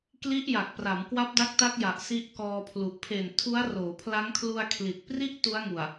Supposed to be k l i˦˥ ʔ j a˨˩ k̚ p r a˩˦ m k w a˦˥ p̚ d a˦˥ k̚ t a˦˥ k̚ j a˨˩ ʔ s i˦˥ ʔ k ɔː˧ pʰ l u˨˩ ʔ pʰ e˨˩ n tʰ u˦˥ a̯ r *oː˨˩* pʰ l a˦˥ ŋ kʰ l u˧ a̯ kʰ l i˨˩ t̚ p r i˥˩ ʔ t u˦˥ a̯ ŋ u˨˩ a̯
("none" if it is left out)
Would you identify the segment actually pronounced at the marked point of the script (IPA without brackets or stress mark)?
oː˩˦